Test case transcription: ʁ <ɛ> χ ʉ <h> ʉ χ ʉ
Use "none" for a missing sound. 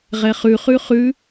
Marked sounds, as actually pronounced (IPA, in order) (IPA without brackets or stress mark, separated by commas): ɛ, χ